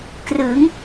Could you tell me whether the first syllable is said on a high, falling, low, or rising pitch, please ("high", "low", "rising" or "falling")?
rising